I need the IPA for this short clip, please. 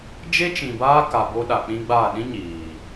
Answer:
d͡ʒ e˦ t͡ʃ ĩ˨ b aː˦ k a˨ b o˦ ɗ a˨ k͡p ĩ˦ ɡ͡b a˦˨ ɗ ĩ˦ ɲ iː˨

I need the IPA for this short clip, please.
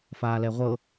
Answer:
f aː l ɛ ʁʷ ɤ

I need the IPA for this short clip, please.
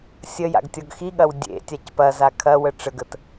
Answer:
sʲ ə j a̰ ɡ tʲ ɔ ɡ x i ɠ ɐ w dʲ ḛ tʲ a c p ɐ z a kʰ ɐ w ə ʈ͡ʂ ə ɡ ə t

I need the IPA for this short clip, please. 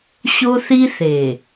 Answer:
ɕ o˦ θ i˦ θ e˨

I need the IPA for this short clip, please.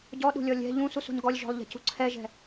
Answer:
ɟ ɔ ɗ ṳ lʲ ɔ lʲ ɛ̤ ʎ ũ s u s ṳ n ɡ ɔ lʲ ʒ ɔ̤ lˠ ʎ ɛ̤ c ṳ ǀʰ ɛ ʒ ɛ̤

